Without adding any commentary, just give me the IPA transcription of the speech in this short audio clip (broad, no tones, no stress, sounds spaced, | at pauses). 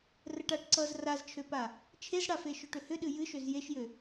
r ə ʈ a ʈ ǀ ʌ z r a z t͡ʃʰ ø p a | t͡ʃʰ e z ɽ a f e ʃ ø ʈ ʏ h ʏ ɗ ɨ j ɨ ʃ ø z j e ʃ j ø